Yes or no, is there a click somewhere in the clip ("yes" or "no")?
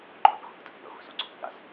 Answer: yes